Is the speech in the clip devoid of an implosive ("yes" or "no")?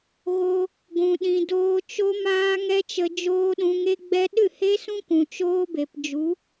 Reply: no